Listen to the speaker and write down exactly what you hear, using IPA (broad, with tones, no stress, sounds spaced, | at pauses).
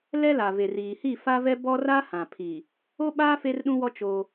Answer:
l ɛ˦ l a˨ v e˨ r iː˨ h i˦˨ f a˦ v ɛ˦ b ɔ˦ r a˦ h ã˨ pʰ i˨ | o˦ ɓ a˦ f e˦ r ɗ ũ˦ w ɔ˦ t͡ʃ o˦